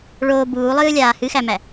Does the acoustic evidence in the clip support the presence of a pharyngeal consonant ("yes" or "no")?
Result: no